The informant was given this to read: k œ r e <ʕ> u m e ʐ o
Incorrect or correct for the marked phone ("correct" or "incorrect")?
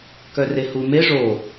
incorrect